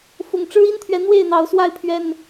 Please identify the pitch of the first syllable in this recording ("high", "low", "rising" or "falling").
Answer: low